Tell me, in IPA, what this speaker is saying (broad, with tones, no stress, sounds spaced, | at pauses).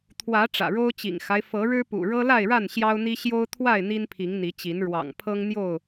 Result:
t̪ʰ w ä˨˦ ʈ͡ʂ ä̰˨˩ ɻ o˦ ʊ̯ t͡ɕ ḭ˨˩ ŋ x a˦ ɪ̯ f ɤ˨˦ ɻ ɻ̩˦ p ṵ˨˩ ɻ ɤ˦ l a˥˨ ɪ̯ ɻ a˥˨ n ɕ j ɑ˦ ʊ̯ n̪ i˦ ɕ j o˦ ʊ̯ t̪ʰ w a˥˨ ɪ̯ n̪ i˦ n pʰ i˨˦ ŋ n̪ i˨˦ t͡ɕ i˨˦ n ɻ w ɑ̰˨˩ ŋ pʰ ɤ˦ ŋ n̪ j o˥˨ ʊ̯